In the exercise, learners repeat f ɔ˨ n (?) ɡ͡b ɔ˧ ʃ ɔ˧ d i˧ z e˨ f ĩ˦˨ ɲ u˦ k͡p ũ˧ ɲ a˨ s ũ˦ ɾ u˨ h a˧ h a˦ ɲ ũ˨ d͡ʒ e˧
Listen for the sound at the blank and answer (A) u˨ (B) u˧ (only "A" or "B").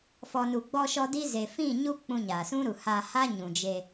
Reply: A